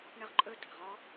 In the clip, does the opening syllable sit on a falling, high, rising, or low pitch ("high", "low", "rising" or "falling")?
high